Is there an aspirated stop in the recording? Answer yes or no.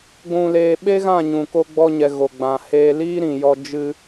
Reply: no